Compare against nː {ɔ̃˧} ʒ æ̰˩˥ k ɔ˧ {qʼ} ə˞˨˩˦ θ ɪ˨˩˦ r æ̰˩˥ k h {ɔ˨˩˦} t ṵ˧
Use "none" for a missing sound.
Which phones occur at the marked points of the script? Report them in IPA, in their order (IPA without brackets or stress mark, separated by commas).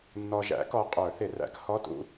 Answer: ɔ˧, qʼ, ɔ˧˥˧